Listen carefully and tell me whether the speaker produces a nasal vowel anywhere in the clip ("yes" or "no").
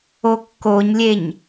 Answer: no